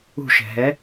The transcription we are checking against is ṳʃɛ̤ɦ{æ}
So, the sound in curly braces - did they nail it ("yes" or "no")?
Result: no